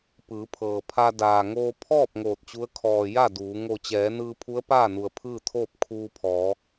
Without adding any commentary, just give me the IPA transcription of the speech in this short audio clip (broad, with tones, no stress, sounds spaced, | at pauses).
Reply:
p ɯː˩˧ pʰ ɤː˩ pʰ a˧ d aː˩ ŋ oː˧ pʰ ɔː˥˨ p̚ ŋ oː˧˩ t̚ t͡ɕ u˧˥ ə̯ kʰ ɔː˩ j a˥˨ d uː˩˧ ŋ o˧˩ t͡ɕ ɛː˩˧ n ɯː˧ pʰ u˧˥ ə̯ p aː˥˨ n u˩ ə̯ pʰ ɯː˥˨ t̪ʰ oː˥˨ p̚ kʰ uː˧ pʰ ɔː˩˧